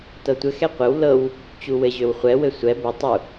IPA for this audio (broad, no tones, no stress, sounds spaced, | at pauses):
t ɤ tʷ ɘ x ɛ qʷ ɘ w l ɤ w | t͡ɕ u w ɘ ʑ ø w χʷ ɛ w ɘ sʷ ɛ b ɛ tˤ u